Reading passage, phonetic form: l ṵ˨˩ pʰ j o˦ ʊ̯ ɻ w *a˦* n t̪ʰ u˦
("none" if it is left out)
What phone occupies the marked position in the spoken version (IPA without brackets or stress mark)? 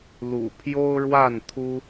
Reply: a˥˨